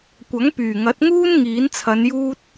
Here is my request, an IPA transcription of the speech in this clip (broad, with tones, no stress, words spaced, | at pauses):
kʷɐ˨˥ŋpyː˨˩ŋɐ˨˥t̚ŋuː˥n ŋiː˨˥nt͡sʰɐ˨˧njuː˥t̚